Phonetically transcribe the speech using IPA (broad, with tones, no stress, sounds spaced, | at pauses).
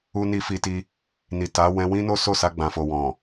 u˧ n i˧ f i˧ t i˧ | n i˨ t a˨˦ w ɛ̃˧ w ĩ˦ n o˦ s o˦˨ s a˧ ɡ͡b ã˨ f o˨ w ɔ̃˨